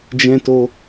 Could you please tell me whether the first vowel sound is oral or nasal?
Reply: nasal